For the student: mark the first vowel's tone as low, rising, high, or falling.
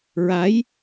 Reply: rising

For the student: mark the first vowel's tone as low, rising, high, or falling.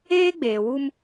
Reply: high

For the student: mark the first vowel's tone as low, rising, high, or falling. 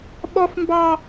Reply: high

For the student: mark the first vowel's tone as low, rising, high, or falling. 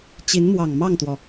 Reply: rising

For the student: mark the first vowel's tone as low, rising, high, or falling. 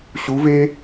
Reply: rising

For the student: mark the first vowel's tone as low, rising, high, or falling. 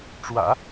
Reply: low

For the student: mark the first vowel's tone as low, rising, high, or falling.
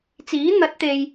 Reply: rising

